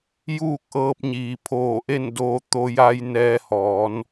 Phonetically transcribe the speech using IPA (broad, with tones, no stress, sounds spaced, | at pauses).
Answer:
j uː˥˨ k̚ ʔ ɤː˧ p̚ ɲ iː˩ pʰ oː˧˩ ʔ e˥˨ n d oː˧ t̪ o˧ j a˧ j n ɛː˧ h ɔː˩˧ n